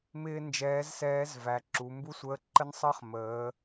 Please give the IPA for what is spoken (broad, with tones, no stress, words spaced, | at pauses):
mɪː˥nd͡ʒɛː˧˥zsɛː˧˥zvæ˩˧ ǁu˩˧mbu˥sʷəː˧˥ ǃə˥nsˤəː˥χ məː˩˧